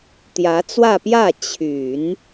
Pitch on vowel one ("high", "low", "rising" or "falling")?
rising